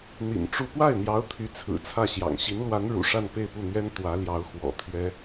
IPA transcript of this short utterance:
n̪ḭ˨˩n ʈ͡ʂu˥˧ pwa˥˩ɪ̯n̪jɑ˧˥ʊ̯ t̪ʰy˧˥t͡sʰɹ̩˨˩ t͡sʰä˥˩ɕjɑ̰˨˩ŋ ɕi˧˥nlwa˧˥n ɻṵ˨˩ʂa˥˧n pe˥˧ɪ̯pu˥˩n̪ɥɛ˥n t̪wä˧˥ljɑ˧˥ʊ̯ xwɔ̰˨˩t̪ʰɥɛ˥

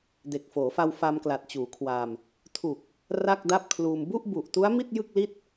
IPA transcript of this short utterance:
de˨˩k̚foː˩˦fa˧w fa˧mkla˨˩t̚t͡ɕuː˩˦kʰwa˧m | tʰu˨˩k̚ | ra˥˩k̚da˥˩p̚kʰluː˧m bu˥˩ʔbu˨˩ʔtu˦˥a̯ mi˥˩t̚jɯ˥˩k̚li˥˩t̚

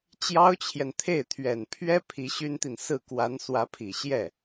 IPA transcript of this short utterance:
t͡ɕjɑ˥ʊ̯t͡ɕʰjɛ˨nt̪ʰe˥˩ɪ̯t̪ʰɥɛ˨˩n pʰɥɛ˥ pʰi˧˥ɕy˥nt̪i˨n sɹ̩˥˩kwa˧˥n swä˧˥pʰi˨˩ɕjɛ˥˩

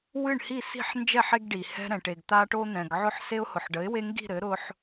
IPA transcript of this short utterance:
wɨ˥˨ɳhi˥˨si̤˥˨ħ nd͡ʒɛ˥˨ħe˦ɡɖi˩ hɛ̤˦ɾɛ̃˩ʈe˩ɡ t̪a˦ʈo˦n̪ɛ̃˩ɡ ʕʊ˥˨ħ se˦ʊ̯hʊ˩ħɖə˩˥ɪ̯we˦ ŋɡi̤˥˨ɾɘ˩˥ ɾʊ˦ħ

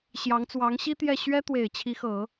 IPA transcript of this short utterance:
ɕjɑ˧˥ŋt͡swɑ˧˥ŋ ɕi˥ t̪jɛ˥˩ ɕɥɛ˥t̪we˨˩ɪ̯ t͡ɕʰi˧˥xɤ˨˩˦

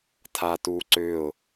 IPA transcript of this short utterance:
tʰatuǀʏʊ̯

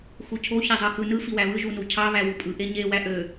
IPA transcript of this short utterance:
xucʰo çezˤɯxɯ nɯ fiwæβɯ ʒunucʰɑ βæwupʼɯ ʔeɲe wæʔø

